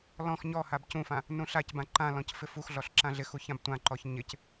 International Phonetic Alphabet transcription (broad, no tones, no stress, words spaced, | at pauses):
lɔ̃x ɲɔhab cũfã | nũɬacbã ǃãlɔ̃c fɪfuxɮɔɬ ǁãɮɪxu çãbtʷãǃɔç ɲɪc